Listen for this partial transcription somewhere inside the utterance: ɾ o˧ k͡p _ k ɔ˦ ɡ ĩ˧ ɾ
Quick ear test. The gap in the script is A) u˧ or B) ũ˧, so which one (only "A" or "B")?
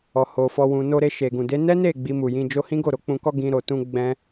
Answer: B